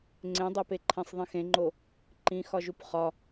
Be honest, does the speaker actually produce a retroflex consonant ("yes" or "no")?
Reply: no